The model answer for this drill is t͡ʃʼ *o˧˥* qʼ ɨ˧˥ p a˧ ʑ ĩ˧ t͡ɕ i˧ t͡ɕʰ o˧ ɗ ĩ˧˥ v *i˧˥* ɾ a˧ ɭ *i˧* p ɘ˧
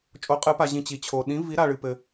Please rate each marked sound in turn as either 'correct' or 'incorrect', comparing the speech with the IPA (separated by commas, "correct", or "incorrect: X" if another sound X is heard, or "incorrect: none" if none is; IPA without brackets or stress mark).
correct, correct, incorrect: ɨ˧